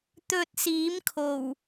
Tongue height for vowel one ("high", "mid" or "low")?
mid